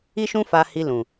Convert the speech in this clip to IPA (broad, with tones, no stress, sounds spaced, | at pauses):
i˦ ʃ ũ˦ f a˧ h i˧ l ũ˨